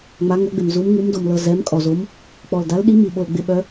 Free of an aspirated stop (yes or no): yes